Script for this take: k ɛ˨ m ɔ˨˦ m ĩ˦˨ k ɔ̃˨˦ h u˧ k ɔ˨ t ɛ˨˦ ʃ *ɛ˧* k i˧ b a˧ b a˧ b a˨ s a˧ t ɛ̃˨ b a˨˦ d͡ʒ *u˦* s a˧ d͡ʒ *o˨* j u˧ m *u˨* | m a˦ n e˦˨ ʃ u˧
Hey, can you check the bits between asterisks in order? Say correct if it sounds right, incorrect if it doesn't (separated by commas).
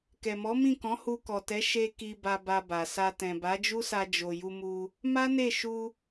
incorrect, correct, correct, incorrect